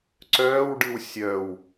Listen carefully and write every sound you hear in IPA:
ǀ œː w ɖ ɯ w sʲ œ w

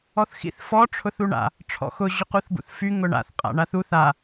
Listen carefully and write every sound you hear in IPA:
ɔ θ x ḭ θ f ɔ ʈ͡ʂʰ ʊ θ u ɳ a̰ | ʈ͡ʂʰ ɔ̰ x ʊ ʑ ʊ q u θ b ṵ θ f y ŋ ʊ ɳ a̰ θ qʼ a̰ ɳ a θ u θ a

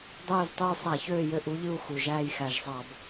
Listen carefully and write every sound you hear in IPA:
dˤ øː˦˨ z tˤ yː˦˨ sˤ æ˧˩˧ ç øː˦˨ j ø˦˨ ʔ u˥ ʎ ɯ˦˨ u̯ x u˨˩ ʒ æː˦˨ j x æ˨˩ ʒ sˤ ɑ˧˩˧ b

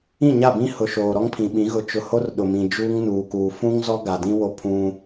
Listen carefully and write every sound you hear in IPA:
ĩ˦˨ ɲ a˦˨ b ĩ˦ h ʊ˨ ʃ oː˨ ɾ ɔ˦ ŋ pʰ ĩ˨ ɓ ĩ˨˦ ɣ ʊ˨ t͡ʃ ʊ˨ h o˦ r ɗ ʊ˨ m ĩ˨ d͡ʒ uː˦ ŋ n uː˨ k uː˨ f ũ˦ ŋ z ɔ˦ ɡ a˨ d ĩ˦ w o˦ pʰ ũ˦

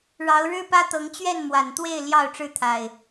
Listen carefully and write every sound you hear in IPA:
ɻ ɑ˨˦ ʊ̯ ɻ ɻ̩˦ p ä˦ t̪ ɤ˨˦ ŋ t͡ɕ ɥ ɛ˥˨ n m w a˨˩ n t̪ w e˥˨ ɪ̯ l j ɑ˥˨ ʊ̯ ʈ͡ʂ ɻ̩˦ t̪ʰ a˨˩ ɪ̯

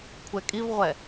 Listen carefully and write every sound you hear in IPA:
kʷʰ ɛ kʼ i v ʁʷ ɛ

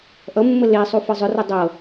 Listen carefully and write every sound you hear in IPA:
ʔ ʌ mː ə l e sˤ u f ɤ zˤ ʏ r ʏ dˤ ɤ

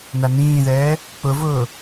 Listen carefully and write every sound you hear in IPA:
n a n ĩː ð ɛː | k͡p ʊ v ʊː

